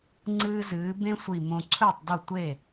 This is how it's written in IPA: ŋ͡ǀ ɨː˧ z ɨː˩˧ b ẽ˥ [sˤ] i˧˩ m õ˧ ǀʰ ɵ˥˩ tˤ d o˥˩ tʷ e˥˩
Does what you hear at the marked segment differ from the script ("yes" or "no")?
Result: yes